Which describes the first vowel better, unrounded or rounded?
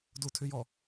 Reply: rounded